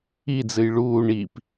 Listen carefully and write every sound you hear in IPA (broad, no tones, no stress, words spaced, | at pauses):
id͡zɨj ɭuː ɳip